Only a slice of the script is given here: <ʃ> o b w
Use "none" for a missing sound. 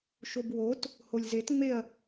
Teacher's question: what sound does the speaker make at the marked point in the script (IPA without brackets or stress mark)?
ʃ